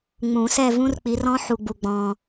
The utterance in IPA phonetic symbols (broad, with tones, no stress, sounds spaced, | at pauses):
ŋ͡m ũ˨˩˦ s ɛ˥˧ v ũ˦˥ r k͡p i˨˦ r ɔ̃˦˥ ħ u˨ ɡ͡b u˨ ɡ͡b ɔ̃˨